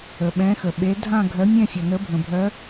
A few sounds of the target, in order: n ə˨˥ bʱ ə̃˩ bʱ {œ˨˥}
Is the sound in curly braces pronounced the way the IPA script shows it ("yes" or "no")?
yes